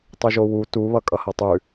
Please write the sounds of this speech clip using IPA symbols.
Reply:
tˤ ʉ ʒ o w u t u β ʌ kʼ ʌ h ʌ tˤ ʉ

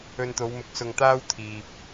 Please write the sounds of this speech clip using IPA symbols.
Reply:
ɵ˧ n t̪ o˨˧ w m ʊ˨˥ k̚ s ʊ˧ ŋ t̪ aː˥ w t̪ʰ iː˨ p̚

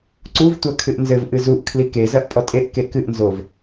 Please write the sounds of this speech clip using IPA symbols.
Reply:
ǀ u v tʷ ɐ kʰ ɨ ʔ n z ɘ v ʔ ɨ z u ʔ kʰ l i k e z ɐ ʔ pʼ ɔ tʼ e ʔ k e k ɨ ʔ n z o v

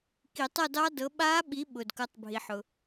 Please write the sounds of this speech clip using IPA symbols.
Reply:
k i˨˩˦ tˤ ɤ˥˧ d ɑ˦˥ d ɤ˨˦ ɓ a˦˥ ɓ i˨˦ ɓ ʊ˩ d k ɤ˨˦ tˤ bʱ i˩ ħ ʊ˩

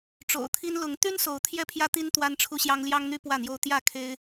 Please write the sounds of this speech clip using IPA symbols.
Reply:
ʈ͡ʂ o̰˨˩ ʊ̯ t̪ʰ i˦ n l ʊ˨˦ ŋ t̪ y˦ n s o˨˦ ʊ̯ t̪ʰ j ɛ˥˨ pʰ j ä˦ t̪ i˦ n t̪ w a˦ n ʈ͡ʂʰ u˦ ɕ j ɑ˦ ŋ l j ɑ˦ ŋ n̪ y˦ p w ä˥˨ n̪ j o˦ ʊ̯ t̪ j ä˥˨ kʰ e˦ ɪ̯

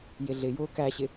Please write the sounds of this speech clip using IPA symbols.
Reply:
j ɪ ɮ ɪ j ʊː k æ ɕ ɪ

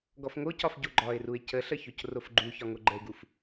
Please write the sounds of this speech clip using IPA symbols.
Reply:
ɡ ɔ f ŋ o c ɒ f ɟ o ɡ͡ǃ ɒ ɪ̯ r u ɪ̯ c ə ɬ ə ç o c r o f ɡ͡ǃ u ç ɒ ŋ o ɡ͡ǃ ə ɪ̯ ɡ u f

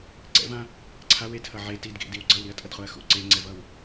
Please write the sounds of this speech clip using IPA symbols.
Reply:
ǀ ɛ̰ v ã | ǀʰ a w e tʰ ʌ ʕ e t i d ɡ ḛ d i w ɡ͡ǀ ʌ w ɾ i ɐ̯ tʼ ʌ d χ o ɐ̯ x ṵ ǀ e ŋ͡ǀ ɛ v ʌ w

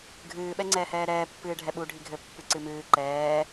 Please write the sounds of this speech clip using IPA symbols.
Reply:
ɡʱ ɨː ɓ ɛ ŋ͡ǀ ɛː h ɛː ɾ ɛː pː ɨː ɖʱ ɛ ɓ u ɖʱ i ɡʱ ɘ pː ɨ ǀ ɨ m ɨː ǃ ɛː

